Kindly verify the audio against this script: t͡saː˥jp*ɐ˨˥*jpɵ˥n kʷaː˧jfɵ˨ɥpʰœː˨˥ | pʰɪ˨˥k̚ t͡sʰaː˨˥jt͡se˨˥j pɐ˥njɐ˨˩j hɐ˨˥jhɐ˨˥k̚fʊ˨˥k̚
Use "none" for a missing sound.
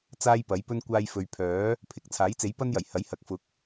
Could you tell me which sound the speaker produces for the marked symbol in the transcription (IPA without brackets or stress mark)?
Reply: ɐ˨˥